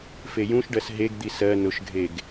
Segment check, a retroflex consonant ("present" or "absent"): present